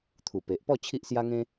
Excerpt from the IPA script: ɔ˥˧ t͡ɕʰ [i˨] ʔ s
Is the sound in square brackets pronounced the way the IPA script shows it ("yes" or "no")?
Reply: no